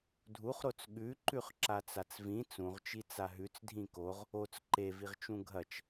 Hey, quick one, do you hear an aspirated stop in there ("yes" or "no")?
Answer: no